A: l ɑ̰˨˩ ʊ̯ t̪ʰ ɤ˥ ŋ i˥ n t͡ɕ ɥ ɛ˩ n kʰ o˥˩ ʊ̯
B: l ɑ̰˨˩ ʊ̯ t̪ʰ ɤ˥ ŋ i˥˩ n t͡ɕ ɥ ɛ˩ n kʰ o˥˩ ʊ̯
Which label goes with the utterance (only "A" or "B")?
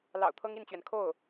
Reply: B